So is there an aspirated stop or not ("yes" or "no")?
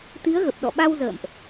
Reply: no